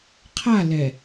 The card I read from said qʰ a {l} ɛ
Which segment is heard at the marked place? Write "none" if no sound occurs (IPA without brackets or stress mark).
l